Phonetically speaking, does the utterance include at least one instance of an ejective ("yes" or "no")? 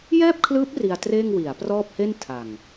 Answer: no